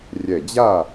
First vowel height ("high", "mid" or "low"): mid